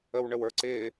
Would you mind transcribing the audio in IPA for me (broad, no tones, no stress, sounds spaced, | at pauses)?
ə w ɳ ə w ə˞ ǀ ɪː